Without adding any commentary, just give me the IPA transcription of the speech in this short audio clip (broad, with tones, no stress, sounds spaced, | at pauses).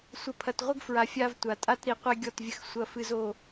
sʷ ɐ˨ pʰ ɐ˨ t ʁʷ ɘ˦ ɡ f ɹ a˨ fʲ a˦ v tʷ a˨ tʼ a˦ t ɾ i˨ qʷ ɛ˦ ɡʲ ɔ˦˨ t vʲ ɘ˦ x sʷ ɐ˦ f ɨ˦ z o˨